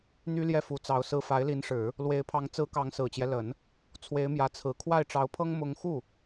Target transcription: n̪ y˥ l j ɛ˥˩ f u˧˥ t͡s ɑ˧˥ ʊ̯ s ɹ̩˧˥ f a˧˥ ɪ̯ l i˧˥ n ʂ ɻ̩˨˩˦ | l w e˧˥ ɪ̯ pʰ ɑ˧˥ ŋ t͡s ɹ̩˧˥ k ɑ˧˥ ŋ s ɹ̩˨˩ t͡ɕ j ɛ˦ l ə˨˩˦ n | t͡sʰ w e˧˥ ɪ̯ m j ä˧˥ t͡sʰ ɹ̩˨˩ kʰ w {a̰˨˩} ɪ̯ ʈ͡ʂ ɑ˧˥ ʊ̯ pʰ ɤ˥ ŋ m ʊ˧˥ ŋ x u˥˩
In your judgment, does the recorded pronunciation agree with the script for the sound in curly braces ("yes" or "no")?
no